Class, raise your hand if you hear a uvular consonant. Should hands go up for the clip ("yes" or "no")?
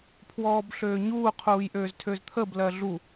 yes